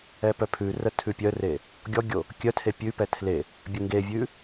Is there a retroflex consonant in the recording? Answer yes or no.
no